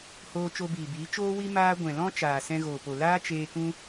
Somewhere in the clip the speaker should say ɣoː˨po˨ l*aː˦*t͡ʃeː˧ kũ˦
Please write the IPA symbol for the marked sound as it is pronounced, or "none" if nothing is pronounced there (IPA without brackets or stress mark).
aː˦